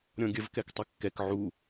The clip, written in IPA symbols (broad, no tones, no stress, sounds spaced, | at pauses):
ɾʲ ɔ̃ ɡʲ ə v k ɛ k tˤ ɛ kː ɛ k ʕ u